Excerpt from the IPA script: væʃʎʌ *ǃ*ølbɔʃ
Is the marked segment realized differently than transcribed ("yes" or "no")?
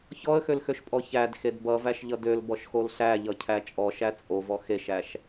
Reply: yes